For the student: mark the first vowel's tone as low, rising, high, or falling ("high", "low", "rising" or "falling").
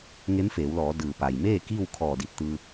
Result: rising